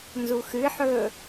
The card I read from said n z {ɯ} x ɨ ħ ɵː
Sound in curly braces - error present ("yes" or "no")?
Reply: yes